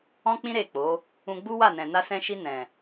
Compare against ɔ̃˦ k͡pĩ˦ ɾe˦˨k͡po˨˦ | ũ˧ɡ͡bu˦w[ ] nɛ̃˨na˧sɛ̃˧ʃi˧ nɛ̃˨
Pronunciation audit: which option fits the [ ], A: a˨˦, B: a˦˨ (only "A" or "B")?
B